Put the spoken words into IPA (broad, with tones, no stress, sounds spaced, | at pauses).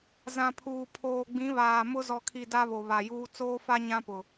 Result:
z ã˨ pʰ uː˨ pʰ oː˨ ɡ͡b ĩ˨˦ β aː˨ m ʊ˦ z ɔ˨ kʰ i˨ d a˦ β o˨ β a˨ j uː˦ t͡s oː˦ f a˦ ɲ ã˦ p ʊ˨